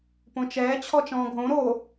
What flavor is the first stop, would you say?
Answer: plain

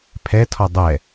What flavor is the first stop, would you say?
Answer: aspirated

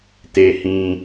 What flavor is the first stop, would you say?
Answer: plain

